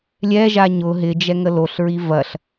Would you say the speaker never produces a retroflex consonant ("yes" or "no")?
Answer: yes